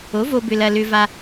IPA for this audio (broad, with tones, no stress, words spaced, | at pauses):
o˩˥vo˧ bʏ˧lɐ˧ lʏ˧va˧